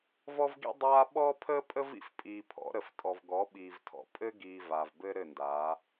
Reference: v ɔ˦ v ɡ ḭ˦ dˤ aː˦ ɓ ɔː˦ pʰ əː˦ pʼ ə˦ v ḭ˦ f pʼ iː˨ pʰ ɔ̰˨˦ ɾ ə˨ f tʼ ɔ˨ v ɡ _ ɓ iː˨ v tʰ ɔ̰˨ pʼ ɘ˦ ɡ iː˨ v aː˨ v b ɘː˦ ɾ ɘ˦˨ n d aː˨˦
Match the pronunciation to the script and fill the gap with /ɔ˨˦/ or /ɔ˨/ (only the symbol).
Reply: ɔ˨˦